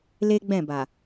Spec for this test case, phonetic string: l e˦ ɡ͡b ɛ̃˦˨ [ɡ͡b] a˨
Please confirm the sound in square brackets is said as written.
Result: no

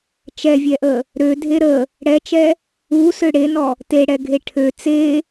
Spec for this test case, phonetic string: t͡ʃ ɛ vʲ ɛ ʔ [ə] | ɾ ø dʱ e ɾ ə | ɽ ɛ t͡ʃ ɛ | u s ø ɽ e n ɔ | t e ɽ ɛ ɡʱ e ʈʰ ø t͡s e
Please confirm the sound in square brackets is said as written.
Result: yes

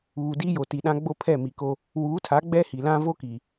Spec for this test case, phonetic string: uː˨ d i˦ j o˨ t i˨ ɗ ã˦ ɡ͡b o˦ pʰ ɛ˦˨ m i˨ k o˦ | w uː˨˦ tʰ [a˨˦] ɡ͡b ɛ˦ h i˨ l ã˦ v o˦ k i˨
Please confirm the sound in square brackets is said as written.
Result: yes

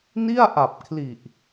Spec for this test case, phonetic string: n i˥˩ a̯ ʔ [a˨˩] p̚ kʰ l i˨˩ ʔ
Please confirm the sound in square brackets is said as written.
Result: yes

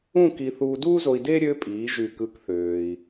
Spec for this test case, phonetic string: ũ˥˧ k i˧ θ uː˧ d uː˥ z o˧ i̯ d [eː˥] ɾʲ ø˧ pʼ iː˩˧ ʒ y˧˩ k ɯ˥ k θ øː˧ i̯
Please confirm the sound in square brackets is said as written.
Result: yes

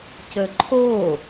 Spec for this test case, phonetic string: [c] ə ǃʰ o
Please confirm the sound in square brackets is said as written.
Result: yes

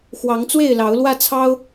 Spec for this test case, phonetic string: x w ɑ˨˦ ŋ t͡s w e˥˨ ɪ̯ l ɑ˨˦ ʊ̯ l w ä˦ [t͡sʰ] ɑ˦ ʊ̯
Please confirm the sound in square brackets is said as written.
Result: yes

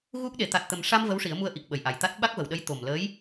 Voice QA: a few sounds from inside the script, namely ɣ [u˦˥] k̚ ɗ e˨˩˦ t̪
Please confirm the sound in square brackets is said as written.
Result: yes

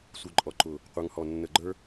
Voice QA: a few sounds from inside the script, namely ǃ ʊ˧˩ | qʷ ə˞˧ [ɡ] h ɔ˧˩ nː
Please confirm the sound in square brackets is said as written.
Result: no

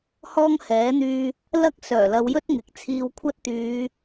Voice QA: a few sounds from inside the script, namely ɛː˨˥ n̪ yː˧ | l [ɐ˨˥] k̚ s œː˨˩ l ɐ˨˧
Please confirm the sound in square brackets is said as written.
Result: no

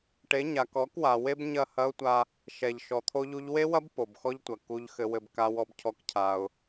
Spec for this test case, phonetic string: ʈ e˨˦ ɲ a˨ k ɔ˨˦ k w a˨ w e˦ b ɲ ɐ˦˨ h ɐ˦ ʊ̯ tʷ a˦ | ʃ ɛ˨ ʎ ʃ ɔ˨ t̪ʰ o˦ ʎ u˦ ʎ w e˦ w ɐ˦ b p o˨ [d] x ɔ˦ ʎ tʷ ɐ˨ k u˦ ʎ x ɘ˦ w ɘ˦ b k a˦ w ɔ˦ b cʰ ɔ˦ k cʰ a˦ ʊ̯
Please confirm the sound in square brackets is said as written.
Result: no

